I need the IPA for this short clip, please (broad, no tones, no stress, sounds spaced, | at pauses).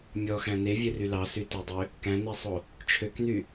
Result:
mʲ ɔ x æ̃ n̪ e vʲ ø r y l ɑ s y t e dˤ ø | k æ̃ n̪ i sˤ o | t͡ʃʰ ø k n̪ y